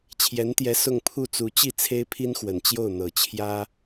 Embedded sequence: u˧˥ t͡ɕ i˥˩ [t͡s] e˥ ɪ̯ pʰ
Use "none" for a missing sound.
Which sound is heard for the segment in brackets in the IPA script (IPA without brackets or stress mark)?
t͡sʰ